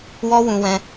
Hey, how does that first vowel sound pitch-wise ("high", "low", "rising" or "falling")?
high